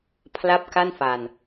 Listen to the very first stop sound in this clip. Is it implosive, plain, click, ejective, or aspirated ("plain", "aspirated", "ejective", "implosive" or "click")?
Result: aspirated